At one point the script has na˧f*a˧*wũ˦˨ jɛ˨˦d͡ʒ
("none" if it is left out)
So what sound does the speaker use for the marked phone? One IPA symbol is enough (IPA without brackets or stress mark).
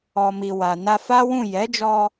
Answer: a˦